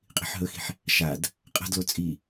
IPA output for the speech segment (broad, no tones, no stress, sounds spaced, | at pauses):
qʼ i̤ ħ ɦ ɵ x i̤ ħ | ʃ a d | qʼ a̤ d l o t͡sʼ i